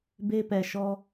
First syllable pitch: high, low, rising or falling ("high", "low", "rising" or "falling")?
high